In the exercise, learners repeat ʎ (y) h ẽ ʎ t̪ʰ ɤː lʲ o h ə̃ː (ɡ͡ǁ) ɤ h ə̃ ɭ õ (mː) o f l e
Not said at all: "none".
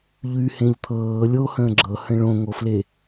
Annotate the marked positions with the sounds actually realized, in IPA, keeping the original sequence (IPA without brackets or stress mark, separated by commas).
y, ɡ͡ǁ, ŋ